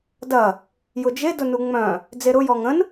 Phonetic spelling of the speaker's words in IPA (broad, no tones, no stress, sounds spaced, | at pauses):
d ɐ | j ʊ d͡ʒ e d ʊ n u ŋ͡m œ̃ | d͡z e ɾ ʊ j ɔ ŋ ə̃ n